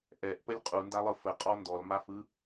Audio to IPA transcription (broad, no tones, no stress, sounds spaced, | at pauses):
ʔ ɛ ʔ p ə lʲ qʼ u n d a lˠ ɯ f ə qʼ ɔ n d ɔ l m a f ɯ